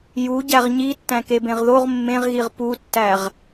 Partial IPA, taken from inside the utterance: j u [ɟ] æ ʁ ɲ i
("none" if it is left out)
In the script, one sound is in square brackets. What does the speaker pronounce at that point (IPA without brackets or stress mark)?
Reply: ɟ